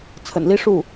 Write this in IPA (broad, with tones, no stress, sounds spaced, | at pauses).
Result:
t͡sʰ ə̰˨˩ n l i˥ ʂ u˥˩